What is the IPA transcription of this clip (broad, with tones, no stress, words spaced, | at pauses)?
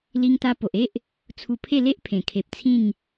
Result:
li˧ŋt̪a˧ po˨ʔe˦ʔ | t͡sʰu˧pʰe˥˧ le˦ʔpʰẽ˨˩kʰe˨p̚ t͡sʰĩ˥˧ŋ